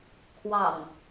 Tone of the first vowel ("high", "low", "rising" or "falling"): low